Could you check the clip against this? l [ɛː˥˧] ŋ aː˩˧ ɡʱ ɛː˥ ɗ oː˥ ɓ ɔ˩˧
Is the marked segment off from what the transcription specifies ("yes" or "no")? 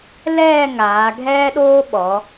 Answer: no